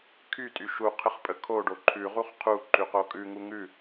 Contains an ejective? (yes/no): yes